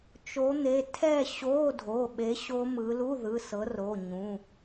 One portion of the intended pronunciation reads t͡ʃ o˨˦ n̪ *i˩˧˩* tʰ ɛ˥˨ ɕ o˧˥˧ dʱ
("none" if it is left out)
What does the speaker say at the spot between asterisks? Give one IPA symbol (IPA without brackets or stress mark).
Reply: e˩˧˩